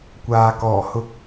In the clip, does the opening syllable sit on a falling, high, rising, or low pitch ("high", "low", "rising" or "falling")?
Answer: low